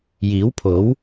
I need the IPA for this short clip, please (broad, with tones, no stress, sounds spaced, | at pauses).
j iː˨˥ w pʰ o˨˥ w